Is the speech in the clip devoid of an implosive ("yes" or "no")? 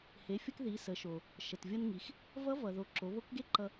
yes